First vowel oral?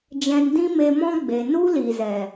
no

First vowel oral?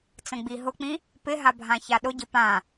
no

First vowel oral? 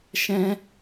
no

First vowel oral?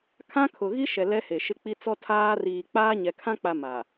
no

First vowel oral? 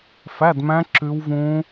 yes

